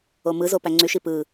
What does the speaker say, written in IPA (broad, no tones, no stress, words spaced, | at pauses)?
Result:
omɯzo pæŋ͡ǀyʃi pɯ